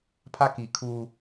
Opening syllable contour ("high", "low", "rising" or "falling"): high